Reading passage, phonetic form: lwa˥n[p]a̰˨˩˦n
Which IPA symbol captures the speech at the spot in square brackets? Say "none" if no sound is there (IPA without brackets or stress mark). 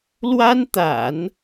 t̪